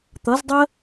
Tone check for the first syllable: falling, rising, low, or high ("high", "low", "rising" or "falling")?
rising